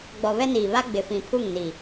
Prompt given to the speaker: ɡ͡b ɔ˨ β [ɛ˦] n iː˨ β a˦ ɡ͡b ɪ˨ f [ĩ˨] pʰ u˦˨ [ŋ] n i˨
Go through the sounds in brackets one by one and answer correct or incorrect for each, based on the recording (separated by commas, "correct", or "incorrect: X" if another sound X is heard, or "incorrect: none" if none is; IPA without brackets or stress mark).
correct, correct, correct